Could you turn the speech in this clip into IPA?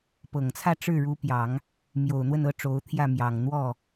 pɤ˨˩ŋt͡sʰä˥˧ ʈ͡ʂɻ̩˥˩ɻu˧˥pjɑ˨˩˦ŋ | mjo˨˩ʊ̯ n̪wə˥˧nɤ˥˩ ʈ͡ʂo˧˥ʊ̯t̪ʰjä˥˩ mjɑ˨˩ŋn̪wɔ˥˩

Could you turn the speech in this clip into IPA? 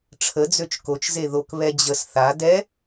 ʈ͡ʂʰəd͡zøt͡ʃ kot͡ʃze ðokβɛ d͡ʑəs θa dɛ

